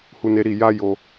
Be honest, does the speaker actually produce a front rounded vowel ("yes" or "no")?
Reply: no